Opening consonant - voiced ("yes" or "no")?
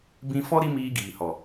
yes